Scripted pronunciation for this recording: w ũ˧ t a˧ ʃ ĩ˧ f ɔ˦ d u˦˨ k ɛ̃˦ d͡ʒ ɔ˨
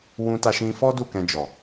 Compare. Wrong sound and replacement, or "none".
ɛ̃˦ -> ɛ̃˧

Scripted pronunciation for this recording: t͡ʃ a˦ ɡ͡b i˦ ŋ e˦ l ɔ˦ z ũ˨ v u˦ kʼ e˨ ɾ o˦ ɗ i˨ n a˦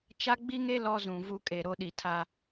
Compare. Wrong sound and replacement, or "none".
n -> tʰ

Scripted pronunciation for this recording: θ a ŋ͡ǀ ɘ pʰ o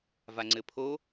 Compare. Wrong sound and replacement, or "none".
θ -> v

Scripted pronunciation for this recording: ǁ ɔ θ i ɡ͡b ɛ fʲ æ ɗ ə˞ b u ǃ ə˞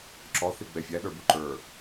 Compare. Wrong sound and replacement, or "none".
none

